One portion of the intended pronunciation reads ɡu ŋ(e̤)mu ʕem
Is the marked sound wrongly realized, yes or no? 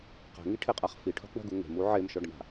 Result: no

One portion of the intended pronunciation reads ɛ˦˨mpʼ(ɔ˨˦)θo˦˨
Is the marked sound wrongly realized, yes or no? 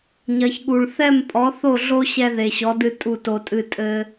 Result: no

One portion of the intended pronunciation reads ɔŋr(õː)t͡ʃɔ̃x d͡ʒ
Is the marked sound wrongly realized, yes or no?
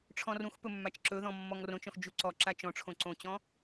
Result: yes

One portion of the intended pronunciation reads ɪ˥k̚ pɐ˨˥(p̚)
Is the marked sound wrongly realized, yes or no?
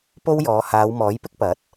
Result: yes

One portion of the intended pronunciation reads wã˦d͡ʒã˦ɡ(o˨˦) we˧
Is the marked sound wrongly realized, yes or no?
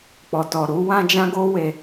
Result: yes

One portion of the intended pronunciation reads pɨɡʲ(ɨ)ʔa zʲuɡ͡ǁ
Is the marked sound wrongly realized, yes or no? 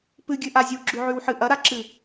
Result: no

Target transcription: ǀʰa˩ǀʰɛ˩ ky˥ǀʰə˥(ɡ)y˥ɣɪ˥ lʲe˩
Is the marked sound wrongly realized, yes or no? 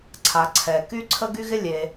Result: no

